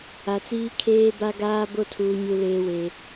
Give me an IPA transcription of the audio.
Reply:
a˨ t͡s iː˦ kʰ eː˦ b a˦ ɡ aː˦ b o˦ tʰ uː˨ ɲ u˦ l eː˦ w e˨

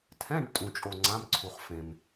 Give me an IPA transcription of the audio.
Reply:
tʰ ɛ̃˧˥˧ ɖ tʼ ũ˧ t͡ʃʼ o˧ ŋ͡ǀ ã˧˥˧ m ǀʰ u˧ χ f ẽ˧ m

